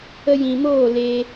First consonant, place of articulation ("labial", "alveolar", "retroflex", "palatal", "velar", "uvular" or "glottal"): palatal